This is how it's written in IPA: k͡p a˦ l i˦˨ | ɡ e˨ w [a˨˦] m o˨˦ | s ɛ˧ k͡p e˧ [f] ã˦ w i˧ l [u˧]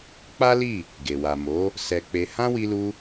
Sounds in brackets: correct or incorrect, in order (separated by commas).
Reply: incorrect, incorrect, correct